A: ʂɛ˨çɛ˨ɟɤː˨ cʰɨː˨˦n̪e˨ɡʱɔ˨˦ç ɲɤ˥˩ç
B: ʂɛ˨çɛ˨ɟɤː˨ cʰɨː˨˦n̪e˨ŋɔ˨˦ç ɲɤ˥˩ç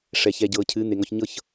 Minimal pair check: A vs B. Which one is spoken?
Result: B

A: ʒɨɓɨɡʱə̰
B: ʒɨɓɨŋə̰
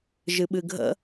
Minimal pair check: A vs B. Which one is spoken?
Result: A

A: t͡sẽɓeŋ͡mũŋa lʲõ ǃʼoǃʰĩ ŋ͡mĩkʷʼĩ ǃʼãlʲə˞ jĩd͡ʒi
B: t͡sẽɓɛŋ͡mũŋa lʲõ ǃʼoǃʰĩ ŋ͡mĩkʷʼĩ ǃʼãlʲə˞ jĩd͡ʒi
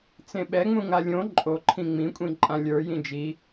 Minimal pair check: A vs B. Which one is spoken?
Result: B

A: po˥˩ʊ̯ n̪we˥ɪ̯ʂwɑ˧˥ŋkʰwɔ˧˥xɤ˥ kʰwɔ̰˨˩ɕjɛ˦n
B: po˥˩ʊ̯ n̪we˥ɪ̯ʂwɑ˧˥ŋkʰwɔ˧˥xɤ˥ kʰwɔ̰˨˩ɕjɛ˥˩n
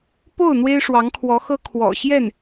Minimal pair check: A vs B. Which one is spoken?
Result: B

